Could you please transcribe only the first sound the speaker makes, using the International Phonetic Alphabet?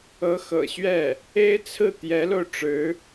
ɤ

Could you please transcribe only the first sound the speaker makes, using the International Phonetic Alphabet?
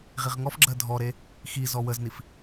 ʁ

